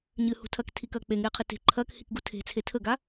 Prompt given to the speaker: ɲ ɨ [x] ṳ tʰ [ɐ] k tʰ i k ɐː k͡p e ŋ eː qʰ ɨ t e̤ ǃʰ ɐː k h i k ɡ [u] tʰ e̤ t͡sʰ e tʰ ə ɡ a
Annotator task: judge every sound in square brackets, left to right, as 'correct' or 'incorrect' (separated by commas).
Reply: incorrect, correct, correct